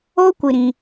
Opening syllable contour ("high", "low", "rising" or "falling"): high